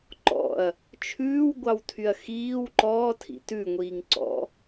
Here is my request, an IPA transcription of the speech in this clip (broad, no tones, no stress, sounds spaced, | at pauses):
ǃ ɔ̰ ɐ̯ | t͡ʃʰ ʉː w ɡʷ ɑ w tʰ y ɐ̯ x iː w ǃ ɔː tʰ ḭ t ʉ ŋʷ iː ŋ ǀ ɔ̰